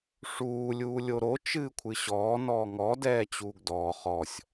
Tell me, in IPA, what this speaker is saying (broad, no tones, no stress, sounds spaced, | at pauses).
ʂ uː lʲ uː lʲ o ɾ o t͡ʃ ɨː kʷʰ ɨ ɕ ɔː n ɔː ŋ ɔ d ɛː t͡ɕ uː ɡ d ɔː χ ɔ sʲ